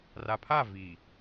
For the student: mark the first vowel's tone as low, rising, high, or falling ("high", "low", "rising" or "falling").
low